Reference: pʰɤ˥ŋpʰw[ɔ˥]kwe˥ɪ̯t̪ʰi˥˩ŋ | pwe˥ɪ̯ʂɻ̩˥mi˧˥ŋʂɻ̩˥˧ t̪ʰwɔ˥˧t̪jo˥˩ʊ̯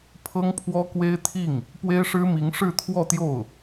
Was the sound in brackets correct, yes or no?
yes